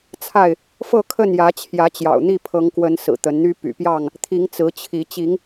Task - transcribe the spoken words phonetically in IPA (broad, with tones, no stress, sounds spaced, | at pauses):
t͡sʰ a˥˨ ɪ̯ | f ɤ˥˨ kʰ ə˥˨ n j ä˨˦ t͡ɕʰ j ä˨˦ t͡ɕ j ɑ̰˨˩ ʊ̯ n̪ i˥˨ pʰ ɤ˨˦ ŋ k w ə˨˦ n s ɹ̩˨˩ t̪ ə˨˦ n n̪ y˦ p y̰˨˩ p j ɑ˥˨ ŋ | t̪ʰ i˨˦ ŋ t͡s ɹ̩˨˦ t͡ɕʰ i˨˦ t͡ɕ i˨˦ ŋ